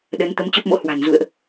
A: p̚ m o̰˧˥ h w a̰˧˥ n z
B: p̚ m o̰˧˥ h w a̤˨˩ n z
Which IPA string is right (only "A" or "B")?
B